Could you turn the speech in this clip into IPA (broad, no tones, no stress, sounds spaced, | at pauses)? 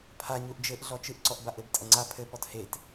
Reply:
pʰ a ɲ u ʔ d͡ʒ ɘ ʔ ɮ ɔ t͡ʃ ɨ ʔ ǀ ɔ ʔ b a ʔ ɘ b tʼ ɐ ŋ͡ǀ a pʰ ɘ p ɔ t h e t